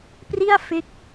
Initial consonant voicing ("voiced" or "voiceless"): voiceless